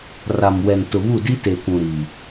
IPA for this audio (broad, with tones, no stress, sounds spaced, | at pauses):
r a˨ m w ɛ˨ n t ʊ˨ β u˦˨ d i˦ t e˨ kʷ ũ˨ ɾ iː˨